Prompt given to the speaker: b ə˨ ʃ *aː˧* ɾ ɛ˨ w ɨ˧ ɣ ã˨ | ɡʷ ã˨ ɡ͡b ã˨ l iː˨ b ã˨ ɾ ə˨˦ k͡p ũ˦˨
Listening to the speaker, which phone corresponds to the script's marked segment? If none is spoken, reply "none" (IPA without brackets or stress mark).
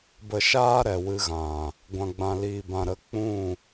aː˧